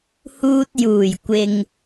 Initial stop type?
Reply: plain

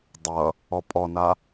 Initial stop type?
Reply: plain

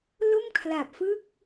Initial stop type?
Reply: aspirated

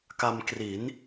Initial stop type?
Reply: plain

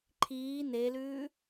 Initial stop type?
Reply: click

